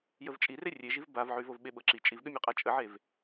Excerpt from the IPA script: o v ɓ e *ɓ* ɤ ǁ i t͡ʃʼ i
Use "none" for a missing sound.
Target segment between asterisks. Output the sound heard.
ɓ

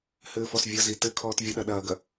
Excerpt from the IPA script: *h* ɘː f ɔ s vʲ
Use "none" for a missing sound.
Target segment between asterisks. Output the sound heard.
h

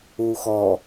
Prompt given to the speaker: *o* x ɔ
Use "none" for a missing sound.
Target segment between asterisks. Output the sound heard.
u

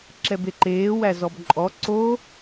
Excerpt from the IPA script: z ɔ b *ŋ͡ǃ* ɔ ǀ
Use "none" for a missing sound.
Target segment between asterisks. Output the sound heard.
ǃʼ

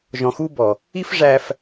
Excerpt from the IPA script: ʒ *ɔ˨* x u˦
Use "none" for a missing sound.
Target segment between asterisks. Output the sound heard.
ɔ̃˨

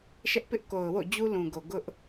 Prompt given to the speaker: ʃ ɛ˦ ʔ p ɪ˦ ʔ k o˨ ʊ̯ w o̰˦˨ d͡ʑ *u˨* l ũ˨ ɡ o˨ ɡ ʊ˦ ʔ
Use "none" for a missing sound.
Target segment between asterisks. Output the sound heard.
u˦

